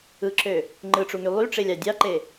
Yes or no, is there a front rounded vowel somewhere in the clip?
yes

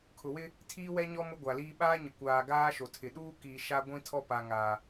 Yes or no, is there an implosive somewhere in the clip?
yes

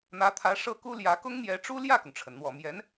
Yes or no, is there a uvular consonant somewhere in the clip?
no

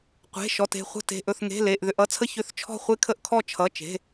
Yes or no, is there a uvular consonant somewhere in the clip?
yes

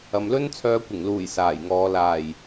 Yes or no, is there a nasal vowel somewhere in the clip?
no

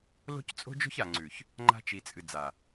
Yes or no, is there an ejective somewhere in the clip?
yes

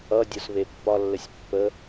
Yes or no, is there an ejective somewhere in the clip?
no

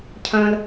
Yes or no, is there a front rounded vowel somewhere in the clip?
yes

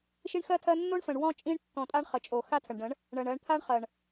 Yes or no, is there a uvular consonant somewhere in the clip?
yes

